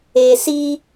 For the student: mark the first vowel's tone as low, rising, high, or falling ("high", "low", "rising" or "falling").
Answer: low